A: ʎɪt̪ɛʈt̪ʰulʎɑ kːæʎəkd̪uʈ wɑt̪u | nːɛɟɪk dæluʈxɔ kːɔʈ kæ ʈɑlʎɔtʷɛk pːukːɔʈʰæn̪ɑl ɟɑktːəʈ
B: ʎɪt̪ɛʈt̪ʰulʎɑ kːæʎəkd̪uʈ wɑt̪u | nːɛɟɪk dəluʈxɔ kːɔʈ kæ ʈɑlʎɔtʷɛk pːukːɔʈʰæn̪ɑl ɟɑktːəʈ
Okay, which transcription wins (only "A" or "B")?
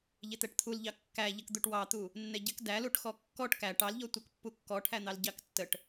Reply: A